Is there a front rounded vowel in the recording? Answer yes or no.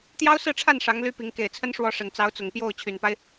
yes